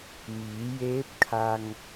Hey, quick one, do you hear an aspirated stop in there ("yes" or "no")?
yes